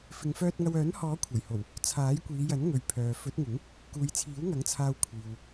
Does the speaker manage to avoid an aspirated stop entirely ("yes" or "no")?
no